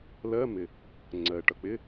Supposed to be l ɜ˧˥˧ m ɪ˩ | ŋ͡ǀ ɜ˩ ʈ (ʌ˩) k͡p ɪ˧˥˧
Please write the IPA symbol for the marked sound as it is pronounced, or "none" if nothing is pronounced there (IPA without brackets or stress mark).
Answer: ʌ˩